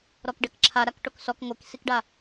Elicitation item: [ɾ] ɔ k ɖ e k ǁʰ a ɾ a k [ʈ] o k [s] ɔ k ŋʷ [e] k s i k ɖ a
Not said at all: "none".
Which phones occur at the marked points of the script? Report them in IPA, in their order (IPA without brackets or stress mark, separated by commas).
ɾ, ʈ, s, e